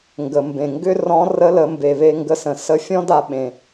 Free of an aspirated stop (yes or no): yes